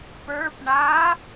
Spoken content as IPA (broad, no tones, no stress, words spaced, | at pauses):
pə˞p ɳa